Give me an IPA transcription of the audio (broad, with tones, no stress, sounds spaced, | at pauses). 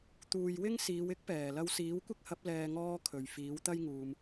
t̪ uː˨ j w ɪ˥ ŋ s iː˨˧ w ɪ˥ k̚ p ɛː˨˩ l ɐ˧ w s iː˨˥ w kʷ ɪ˥ k̚ h ɐ˨˥ p̚ l ɛː˨ ŋ ɔː˧ kʰ ɵ˨˩ ɥ f iː˨˥ w t̪ ɐ˥ j ŋ uː˨ m